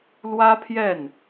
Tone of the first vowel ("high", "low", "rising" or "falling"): high